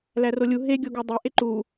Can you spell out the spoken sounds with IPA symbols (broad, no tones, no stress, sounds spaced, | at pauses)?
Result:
l æ r o lʲ u ɦ e ɡʲ o ɡ æ dˤ e ʔ e ǃ u